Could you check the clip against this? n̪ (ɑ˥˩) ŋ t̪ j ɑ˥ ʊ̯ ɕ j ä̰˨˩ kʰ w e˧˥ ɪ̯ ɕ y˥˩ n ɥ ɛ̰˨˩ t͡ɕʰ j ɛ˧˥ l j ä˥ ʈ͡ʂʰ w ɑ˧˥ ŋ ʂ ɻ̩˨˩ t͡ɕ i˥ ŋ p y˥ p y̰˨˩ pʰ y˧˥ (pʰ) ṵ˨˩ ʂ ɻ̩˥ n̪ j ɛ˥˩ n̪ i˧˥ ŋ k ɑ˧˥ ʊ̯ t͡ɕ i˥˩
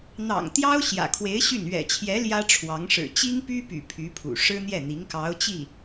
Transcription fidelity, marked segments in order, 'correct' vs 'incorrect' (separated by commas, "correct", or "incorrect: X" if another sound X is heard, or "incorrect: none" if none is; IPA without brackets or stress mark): incorrect: ɑ̰˨˩, correct